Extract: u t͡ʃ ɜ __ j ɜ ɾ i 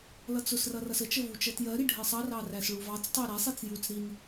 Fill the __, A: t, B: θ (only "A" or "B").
A